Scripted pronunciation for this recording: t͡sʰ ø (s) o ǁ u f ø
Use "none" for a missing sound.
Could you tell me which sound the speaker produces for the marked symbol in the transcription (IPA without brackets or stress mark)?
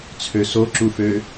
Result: s